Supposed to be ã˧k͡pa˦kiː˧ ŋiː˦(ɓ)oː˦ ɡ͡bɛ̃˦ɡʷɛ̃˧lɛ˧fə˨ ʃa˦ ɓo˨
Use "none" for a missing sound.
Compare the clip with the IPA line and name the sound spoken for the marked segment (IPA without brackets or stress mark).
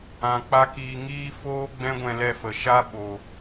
f